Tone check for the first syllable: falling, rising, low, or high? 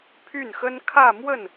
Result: falling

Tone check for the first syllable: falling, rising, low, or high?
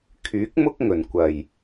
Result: rising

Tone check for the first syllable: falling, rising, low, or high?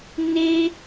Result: high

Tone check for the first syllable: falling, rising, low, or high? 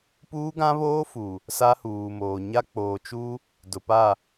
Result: high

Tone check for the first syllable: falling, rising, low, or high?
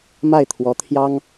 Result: falling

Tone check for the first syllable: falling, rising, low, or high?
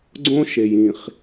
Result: high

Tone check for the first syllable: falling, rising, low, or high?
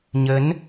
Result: rising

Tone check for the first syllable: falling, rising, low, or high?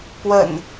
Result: low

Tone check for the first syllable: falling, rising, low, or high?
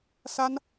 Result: high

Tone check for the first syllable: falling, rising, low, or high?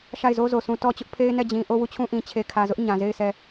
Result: falling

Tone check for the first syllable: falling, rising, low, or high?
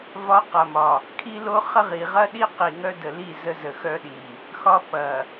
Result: rising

